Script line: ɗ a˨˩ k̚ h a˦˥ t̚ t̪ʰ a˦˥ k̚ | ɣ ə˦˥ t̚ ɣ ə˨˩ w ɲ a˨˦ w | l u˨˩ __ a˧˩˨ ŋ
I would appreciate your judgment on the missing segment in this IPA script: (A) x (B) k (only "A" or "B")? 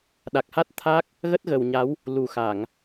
A